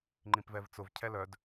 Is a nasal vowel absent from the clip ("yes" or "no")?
no